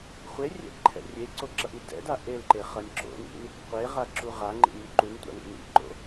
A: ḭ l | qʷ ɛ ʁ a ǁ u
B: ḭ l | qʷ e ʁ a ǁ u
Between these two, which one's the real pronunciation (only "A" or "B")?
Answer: B